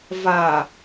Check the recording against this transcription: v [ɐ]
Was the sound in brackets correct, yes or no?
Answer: no